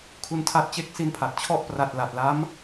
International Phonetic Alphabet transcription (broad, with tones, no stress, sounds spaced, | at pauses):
kʰ u˧ n tʰ a˦˥ t̚ t͡ɕ e˥˩ k̚ s i˦˥ n pʰ a˨˩ t̚ t͡ɕʰ ɔ˦˥ ʔ p r a˨˩ t̚ l a˨˩ t̚ l a˦˥ m